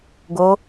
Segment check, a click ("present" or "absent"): absent